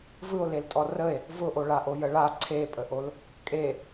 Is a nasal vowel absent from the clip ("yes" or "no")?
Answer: yes